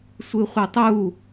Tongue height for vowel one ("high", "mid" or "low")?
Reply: high